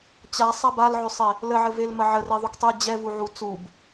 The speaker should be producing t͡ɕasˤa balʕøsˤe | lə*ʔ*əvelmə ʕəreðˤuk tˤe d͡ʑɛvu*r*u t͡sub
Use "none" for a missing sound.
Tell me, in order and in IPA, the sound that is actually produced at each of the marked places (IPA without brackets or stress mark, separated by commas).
ʕ, ʕ